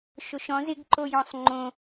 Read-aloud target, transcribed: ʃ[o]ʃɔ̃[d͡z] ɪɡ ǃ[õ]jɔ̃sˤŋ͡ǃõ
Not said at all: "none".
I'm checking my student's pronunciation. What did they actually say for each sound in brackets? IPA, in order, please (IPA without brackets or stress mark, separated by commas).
o, z, o